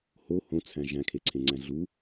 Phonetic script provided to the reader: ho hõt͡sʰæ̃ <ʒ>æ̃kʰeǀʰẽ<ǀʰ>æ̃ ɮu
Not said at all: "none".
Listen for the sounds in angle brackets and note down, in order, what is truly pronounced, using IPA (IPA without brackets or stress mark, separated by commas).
ʒ, ŋ͡ǀ